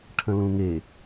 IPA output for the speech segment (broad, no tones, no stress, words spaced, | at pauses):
ʈʰə̃lũŋe